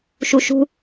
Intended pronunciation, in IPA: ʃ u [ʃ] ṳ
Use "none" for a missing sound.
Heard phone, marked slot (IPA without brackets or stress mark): ʃ